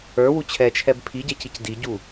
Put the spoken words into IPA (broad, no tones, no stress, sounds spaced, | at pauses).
ə˞ w u t͡ɕʰ ɛ t͡ʃʰ ɛ b pʰ i ɟ ɛ c i c d i ɟ u